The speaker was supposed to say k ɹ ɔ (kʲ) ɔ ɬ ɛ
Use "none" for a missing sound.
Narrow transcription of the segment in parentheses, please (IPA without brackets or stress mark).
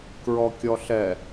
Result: kʲ